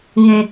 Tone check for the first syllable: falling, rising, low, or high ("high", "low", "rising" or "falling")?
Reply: low